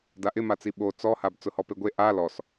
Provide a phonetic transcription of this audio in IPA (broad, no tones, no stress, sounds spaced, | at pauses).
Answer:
d a ʔ ɪ m a t͡s i ɓ o t͡s ɔ h a b t͡s ʊ h ɔ p e ɡʷ e ʔ a l ɔ s